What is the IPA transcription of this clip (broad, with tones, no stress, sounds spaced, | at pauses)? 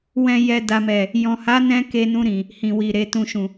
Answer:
w ɛ̃˨ j ɛ˨ d a˨ m ɛ˨ | j ɔ̃˨ h a˨˦ n ɛ̃˦ k e˧ n ũ˧ ɾ ĩ˨ | h ĩ˨ w i˨ ɾ e˨˦ t ũ˧ ʃ ũ˨